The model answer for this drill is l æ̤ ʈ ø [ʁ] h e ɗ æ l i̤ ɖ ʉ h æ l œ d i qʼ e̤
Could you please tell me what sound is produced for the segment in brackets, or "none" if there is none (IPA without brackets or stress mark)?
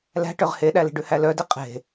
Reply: ʁ